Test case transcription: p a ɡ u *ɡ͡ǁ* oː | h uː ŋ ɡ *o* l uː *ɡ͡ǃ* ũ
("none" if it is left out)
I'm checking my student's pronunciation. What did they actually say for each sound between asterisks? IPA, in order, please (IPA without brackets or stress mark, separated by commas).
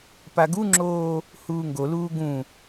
ŋ͡ǁ, o, ɡ